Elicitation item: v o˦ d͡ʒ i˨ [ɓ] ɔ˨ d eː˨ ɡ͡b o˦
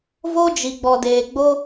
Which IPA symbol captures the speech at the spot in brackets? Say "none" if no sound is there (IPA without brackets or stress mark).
ɡ͡b